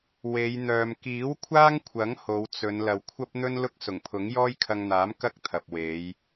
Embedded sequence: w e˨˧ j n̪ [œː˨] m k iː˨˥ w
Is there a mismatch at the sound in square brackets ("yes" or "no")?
no